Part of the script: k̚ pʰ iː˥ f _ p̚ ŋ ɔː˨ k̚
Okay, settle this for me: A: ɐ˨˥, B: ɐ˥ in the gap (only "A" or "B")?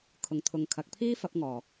A